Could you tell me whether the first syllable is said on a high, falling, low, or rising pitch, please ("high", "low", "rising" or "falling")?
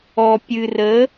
low